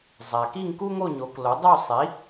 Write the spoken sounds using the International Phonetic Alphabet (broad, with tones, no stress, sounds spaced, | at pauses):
zˤ æ˩ k i˥˨ ŋ k u˥ ŋ o˥˨ ɲ o˩˥ k l o˩˥ dˤ u˥˨ sˤ i˩˥